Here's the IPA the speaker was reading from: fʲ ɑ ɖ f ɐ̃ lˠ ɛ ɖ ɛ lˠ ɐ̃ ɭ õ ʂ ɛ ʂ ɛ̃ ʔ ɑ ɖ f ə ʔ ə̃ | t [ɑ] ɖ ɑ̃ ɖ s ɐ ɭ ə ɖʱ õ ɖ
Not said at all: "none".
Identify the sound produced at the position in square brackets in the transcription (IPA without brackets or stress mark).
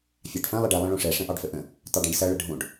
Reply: ɑ